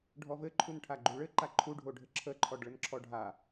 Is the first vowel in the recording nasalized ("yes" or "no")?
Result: no